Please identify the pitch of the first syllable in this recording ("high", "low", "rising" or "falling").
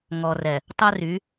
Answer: low